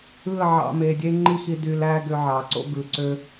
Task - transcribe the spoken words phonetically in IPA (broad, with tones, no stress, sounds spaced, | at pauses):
ɯ˦˨ ə̯ ʕ ɑ̰˧ m e˨ dʲ e˦ ŋ͡ǃ i˦ x i˧ d y˨ l æ˧ ɡ ø˧ ʕ ɑ˨ ǀ o̰˦ ɡ ɯ˨ ǀ ø˦